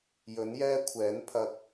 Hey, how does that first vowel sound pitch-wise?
rising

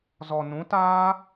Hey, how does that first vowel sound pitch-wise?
low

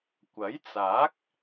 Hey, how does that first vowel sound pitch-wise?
rising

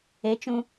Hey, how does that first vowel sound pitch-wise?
rising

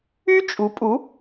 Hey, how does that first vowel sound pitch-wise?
high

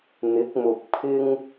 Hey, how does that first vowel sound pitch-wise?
rising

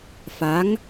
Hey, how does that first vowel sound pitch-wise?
rising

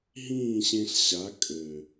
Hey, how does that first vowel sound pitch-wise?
falling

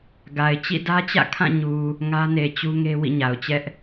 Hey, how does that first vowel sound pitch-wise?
low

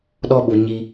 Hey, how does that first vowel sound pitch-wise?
high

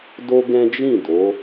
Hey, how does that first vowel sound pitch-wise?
high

